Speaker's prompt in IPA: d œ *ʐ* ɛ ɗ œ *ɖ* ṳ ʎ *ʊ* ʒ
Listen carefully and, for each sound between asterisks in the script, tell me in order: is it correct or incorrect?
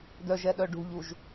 incorrect, correct, incorrect

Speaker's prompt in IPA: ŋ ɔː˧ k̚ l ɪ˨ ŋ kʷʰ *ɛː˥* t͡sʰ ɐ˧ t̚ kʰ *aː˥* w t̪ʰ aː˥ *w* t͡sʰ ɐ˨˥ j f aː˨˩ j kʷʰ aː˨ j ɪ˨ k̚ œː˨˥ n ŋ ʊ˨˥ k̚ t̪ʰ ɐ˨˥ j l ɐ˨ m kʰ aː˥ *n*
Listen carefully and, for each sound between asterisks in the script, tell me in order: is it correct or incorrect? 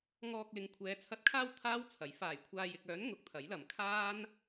incorrect, correct, correct, correct

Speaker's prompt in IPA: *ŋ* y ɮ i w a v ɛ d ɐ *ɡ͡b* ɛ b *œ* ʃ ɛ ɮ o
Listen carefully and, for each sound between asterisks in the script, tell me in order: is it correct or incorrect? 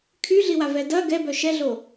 incorrect, incorrect, correct

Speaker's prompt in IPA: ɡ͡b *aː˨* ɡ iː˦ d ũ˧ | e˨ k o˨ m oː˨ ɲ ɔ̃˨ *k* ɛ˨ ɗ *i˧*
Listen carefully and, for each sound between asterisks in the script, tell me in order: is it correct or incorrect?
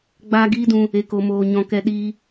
incorrect, correct, incorrect

